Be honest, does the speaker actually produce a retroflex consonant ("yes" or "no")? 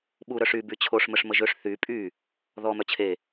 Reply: yes